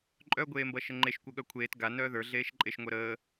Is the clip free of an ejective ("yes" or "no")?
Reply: no